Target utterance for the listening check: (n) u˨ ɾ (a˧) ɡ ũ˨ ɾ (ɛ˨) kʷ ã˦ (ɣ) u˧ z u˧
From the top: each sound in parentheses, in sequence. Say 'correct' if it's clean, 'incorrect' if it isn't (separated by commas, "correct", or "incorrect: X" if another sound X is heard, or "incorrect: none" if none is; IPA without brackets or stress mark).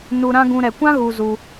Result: correct, incorrect: ã˧, correct, correct